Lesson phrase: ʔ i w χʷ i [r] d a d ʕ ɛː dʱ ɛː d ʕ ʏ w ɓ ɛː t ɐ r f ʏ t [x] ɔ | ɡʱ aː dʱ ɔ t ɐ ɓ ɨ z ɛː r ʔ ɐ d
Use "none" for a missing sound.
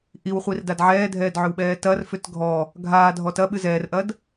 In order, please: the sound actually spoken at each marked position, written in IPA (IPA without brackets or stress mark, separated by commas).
r, ɡʱ